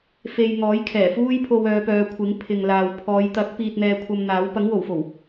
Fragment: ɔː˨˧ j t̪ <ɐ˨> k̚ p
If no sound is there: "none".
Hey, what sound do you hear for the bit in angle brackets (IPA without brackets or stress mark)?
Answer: ɐ˨˥